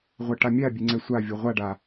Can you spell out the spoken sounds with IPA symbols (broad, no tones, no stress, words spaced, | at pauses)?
ʁʷɐʈamʲabʲe ŋ͡ǀɛsʷavʲo ʁʷaɖa